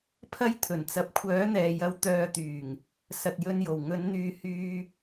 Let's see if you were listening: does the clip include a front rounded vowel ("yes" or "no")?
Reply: yes